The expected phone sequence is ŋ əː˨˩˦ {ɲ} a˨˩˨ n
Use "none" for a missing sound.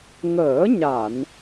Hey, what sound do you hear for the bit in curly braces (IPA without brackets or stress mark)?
ɲ